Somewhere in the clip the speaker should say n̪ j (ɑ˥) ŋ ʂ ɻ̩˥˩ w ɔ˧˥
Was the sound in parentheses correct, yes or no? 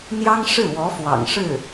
yes